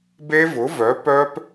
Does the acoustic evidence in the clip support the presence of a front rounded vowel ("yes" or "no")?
yes